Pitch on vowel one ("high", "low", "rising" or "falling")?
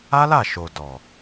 high